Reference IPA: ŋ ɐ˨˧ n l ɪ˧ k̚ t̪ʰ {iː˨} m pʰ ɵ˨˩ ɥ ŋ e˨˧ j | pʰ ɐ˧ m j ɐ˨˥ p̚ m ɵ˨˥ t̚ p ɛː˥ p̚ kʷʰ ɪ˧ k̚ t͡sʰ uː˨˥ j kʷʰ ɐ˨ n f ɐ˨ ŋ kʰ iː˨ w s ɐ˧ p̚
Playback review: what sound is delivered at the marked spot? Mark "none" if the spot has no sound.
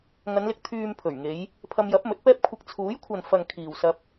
yː˨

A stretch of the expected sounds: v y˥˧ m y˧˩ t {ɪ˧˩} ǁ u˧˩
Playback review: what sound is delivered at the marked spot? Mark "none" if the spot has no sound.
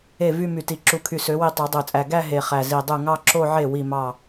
i˧˩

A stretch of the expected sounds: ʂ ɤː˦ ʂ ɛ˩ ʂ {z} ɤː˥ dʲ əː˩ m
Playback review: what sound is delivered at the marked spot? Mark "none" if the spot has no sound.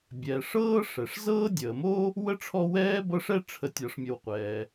z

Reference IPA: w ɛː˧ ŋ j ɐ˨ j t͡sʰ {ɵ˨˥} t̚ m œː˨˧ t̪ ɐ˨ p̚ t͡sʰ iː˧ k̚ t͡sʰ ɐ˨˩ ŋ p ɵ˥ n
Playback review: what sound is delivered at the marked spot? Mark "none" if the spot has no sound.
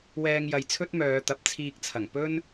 ɵ˥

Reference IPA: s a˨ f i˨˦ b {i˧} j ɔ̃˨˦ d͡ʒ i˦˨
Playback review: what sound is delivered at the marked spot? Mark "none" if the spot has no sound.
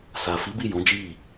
i˦˨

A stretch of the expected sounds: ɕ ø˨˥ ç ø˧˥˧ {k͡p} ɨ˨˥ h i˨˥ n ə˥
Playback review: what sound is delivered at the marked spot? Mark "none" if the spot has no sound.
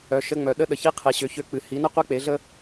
k͡p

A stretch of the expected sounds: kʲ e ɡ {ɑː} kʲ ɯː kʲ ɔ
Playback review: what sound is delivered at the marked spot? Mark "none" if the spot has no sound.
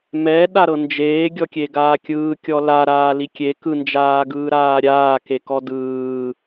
aː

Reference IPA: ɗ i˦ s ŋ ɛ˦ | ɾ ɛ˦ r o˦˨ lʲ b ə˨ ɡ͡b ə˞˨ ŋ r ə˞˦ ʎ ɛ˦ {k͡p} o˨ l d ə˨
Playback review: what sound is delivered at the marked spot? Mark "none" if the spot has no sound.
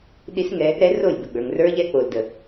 k͡p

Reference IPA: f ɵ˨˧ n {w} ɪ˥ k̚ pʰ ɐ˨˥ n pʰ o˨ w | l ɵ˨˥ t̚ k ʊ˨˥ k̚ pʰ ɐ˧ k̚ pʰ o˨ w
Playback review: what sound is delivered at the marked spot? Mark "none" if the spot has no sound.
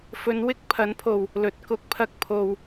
w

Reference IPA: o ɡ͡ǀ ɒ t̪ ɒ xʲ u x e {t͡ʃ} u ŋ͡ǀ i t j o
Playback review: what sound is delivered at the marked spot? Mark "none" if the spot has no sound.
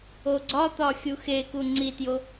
k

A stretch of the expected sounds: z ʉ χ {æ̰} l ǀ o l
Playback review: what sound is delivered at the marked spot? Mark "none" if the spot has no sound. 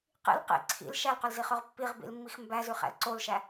æ̰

